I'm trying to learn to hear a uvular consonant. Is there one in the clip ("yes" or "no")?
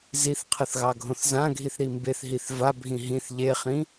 yes